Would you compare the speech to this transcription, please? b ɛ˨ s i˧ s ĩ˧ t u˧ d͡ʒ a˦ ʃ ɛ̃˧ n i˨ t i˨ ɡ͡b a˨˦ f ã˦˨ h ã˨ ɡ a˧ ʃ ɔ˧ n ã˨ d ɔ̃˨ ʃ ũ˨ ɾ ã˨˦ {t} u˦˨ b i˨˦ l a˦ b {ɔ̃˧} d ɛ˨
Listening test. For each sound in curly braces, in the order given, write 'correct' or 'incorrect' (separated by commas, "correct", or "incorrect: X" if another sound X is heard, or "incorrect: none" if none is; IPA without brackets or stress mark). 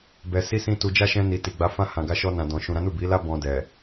incorrect: n, correct